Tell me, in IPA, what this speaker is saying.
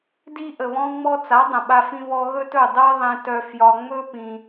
di˧ ʔə˨βɔ̃˧ŋ͡mɔ˧t͡sa˨˦ dˤə̃˨ɓa˧fĩ˧ βɔ˧ɣɵ˦tɵ˦˨dˤɜ˦ ðˤẽ˧tœ˧ fjɒ˧ ŋ͡mɵ˦pĩ˧

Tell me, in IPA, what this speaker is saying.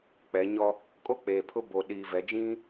k͡pɛ˨˦ɲɔ˦ | kʼo˦k͡peː˨pʰʊ˦ bo˨ɗiː˨vɛ˨˦d͡ʒĩ˦

